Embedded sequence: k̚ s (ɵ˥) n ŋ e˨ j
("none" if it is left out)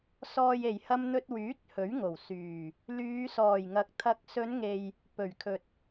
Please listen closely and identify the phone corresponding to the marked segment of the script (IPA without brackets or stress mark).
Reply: ɵ˨˧